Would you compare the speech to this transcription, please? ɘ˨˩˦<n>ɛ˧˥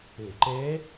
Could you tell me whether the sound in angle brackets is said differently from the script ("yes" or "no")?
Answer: yes